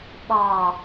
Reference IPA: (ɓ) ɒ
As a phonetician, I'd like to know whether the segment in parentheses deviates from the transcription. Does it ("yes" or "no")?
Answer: no